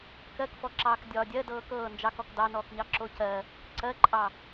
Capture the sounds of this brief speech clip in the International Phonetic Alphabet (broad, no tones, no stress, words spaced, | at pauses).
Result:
kɜkfɔǁɑːk dʲɒːdʲɜ dɤːkɤː nd͡ʒɑkɔk dɑnɔːkɲɑ ǁocɜ | ǀɜǃʼɑ